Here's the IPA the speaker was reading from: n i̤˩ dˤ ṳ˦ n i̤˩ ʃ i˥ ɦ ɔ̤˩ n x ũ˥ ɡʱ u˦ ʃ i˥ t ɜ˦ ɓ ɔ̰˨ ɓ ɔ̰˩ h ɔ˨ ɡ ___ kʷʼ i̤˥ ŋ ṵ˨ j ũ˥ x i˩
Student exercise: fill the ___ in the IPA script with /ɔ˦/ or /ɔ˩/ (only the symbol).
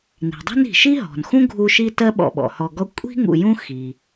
ɔ˦